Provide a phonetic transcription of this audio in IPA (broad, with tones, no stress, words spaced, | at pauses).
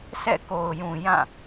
sʰɛ̰˦˨ko˨ʊ̯jũ˨jã˦˨